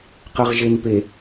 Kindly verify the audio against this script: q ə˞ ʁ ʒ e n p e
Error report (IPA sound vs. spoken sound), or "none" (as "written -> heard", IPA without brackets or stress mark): none